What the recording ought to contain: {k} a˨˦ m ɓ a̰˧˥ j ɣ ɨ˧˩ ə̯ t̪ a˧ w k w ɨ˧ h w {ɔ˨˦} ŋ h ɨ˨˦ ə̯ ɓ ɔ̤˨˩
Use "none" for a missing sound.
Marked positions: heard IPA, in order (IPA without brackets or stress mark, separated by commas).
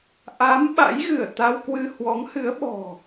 ʔ, ɔ˨˦